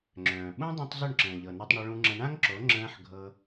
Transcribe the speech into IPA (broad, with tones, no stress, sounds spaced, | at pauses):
ŋ͡ǁ œ̃ː˨ ɓ ũ˦ dˤ ũ˧ tˤ z ɵ˦˨ ɳ ǁ ə̃ː˨ ʎ ɤ˨ n ɤ˧ tˤ ɳ ɵ˧ ɭ ũ˧ ŋ͡ǁ ə̃˧ ɳ ã˦ ŋ ǁ o˨˦ ŋ͡ǁ ə̃ː˧ ħ ɡʱ ɤ˧